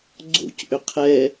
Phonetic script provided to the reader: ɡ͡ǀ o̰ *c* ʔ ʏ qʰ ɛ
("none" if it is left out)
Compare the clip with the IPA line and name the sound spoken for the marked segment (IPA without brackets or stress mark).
c